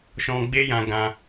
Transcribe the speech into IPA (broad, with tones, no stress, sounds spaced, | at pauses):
ʃ ɔ̃˧ ɡ͡b e˦ j ã˧ ɡ ã˧